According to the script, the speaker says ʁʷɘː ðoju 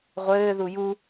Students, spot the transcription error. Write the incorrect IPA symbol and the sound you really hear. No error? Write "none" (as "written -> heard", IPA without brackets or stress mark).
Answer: o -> u